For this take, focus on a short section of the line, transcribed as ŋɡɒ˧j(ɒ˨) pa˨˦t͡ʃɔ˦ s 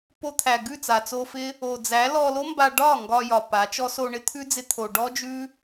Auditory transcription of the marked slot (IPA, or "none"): ɒ˨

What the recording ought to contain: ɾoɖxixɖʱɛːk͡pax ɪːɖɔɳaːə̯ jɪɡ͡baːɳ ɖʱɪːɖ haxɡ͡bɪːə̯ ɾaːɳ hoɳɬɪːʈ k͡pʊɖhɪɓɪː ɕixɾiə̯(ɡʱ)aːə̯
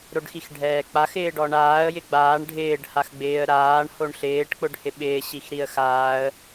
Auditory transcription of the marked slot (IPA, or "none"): x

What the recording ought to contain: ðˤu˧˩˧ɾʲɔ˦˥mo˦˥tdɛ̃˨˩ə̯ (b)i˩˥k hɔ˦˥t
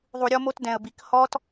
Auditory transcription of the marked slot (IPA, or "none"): b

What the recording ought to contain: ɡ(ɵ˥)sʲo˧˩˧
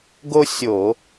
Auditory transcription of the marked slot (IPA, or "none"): o˥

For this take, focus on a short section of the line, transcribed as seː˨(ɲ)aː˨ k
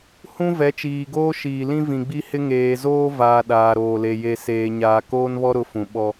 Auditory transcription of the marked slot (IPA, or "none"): ɲ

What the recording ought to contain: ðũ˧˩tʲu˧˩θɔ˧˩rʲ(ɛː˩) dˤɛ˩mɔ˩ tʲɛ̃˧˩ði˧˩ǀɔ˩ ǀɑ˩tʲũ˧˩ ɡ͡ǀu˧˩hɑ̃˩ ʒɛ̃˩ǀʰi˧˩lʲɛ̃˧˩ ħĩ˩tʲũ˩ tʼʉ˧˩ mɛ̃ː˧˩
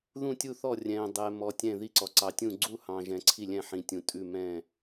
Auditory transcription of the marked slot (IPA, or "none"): ɛ̃ː˩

